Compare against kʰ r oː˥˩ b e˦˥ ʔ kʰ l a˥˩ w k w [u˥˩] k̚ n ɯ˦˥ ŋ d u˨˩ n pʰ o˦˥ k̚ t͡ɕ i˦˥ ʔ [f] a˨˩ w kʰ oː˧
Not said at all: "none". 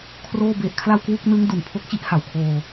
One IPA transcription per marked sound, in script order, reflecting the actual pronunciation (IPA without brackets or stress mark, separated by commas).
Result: u˥˩, h